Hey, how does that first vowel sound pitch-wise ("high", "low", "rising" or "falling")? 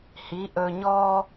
rising